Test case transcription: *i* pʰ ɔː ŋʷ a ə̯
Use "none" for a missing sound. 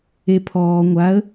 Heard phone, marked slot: e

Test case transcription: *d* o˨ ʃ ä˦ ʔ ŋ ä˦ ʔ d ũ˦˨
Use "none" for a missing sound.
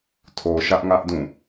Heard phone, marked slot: tʰ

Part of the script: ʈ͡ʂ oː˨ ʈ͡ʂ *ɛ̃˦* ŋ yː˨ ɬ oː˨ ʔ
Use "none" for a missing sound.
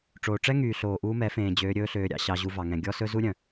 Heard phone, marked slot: ɛ˦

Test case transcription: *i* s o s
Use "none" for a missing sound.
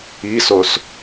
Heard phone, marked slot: i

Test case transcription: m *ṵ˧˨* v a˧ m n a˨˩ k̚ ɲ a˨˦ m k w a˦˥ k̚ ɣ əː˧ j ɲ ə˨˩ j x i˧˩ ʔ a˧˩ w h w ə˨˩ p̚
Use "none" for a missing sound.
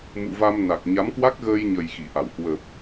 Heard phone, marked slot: ṵ˧˨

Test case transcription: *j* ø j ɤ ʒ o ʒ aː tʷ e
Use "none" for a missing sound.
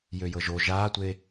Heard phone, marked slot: j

